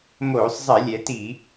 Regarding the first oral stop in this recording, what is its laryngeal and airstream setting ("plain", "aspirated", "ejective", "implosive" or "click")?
plain